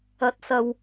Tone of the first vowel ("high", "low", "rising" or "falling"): rising